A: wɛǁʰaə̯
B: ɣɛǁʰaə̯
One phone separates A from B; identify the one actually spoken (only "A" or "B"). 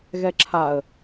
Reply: B